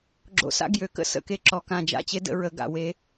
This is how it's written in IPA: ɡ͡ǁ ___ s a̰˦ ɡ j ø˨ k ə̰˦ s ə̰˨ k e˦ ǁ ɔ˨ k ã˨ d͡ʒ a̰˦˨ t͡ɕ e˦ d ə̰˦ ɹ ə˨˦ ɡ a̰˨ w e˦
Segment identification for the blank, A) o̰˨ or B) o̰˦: A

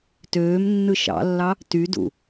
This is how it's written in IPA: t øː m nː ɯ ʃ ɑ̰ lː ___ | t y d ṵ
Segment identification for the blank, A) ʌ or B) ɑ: B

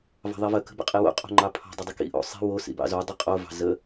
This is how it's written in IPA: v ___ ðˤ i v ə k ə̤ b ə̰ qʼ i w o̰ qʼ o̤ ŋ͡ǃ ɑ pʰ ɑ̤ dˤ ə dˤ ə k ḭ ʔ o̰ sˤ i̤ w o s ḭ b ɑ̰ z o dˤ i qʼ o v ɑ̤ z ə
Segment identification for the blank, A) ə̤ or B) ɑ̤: B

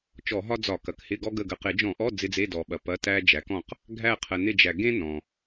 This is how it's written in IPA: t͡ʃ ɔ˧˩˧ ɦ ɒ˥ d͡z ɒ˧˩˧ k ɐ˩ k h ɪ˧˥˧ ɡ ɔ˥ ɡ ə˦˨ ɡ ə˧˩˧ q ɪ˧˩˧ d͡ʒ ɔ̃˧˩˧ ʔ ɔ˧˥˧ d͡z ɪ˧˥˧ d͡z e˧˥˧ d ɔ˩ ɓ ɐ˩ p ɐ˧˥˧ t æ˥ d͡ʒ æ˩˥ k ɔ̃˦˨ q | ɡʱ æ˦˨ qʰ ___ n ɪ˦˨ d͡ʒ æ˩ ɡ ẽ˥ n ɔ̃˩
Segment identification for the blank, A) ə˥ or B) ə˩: B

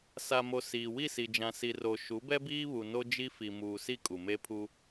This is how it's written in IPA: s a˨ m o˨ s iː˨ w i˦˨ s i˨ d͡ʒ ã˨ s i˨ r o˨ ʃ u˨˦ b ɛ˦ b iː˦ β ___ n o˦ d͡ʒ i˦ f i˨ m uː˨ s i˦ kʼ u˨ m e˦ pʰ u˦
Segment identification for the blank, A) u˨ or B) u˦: A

